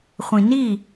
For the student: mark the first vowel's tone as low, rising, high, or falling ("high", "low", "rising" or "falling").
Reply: low